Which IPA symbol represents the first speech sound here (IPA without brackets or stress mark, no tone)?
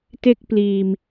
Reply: t